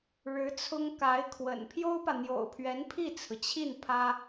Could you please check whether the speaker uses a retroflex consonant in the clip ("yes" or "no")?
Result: yes